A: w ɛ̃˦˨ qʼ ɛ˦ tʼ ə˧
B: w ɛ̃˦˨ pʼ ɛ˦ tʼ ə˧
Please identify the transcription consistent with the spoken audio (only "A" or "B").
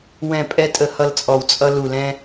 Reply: B